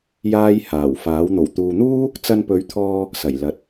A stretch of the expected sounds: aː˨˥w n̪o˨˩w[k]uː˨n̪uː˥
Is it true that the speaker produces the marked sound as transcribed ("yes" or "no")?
no